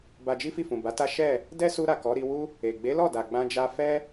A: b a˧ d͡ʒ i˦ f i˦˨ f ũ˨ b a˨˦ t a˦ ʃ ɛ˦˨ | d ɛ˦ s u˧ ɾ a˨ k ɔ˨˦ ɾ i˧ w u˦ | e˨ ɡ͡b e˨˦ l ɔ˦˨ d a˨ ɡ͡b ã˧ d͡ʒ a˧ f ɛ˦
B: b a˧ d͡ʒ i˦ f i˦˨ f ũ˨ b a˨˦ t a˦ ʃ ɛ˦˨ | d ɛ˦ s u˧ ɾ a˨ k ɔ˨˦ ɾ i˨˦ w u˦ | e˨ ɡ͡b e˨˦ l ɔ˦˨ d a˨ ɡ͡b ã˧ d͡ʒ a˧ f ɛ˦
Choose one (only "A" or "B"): A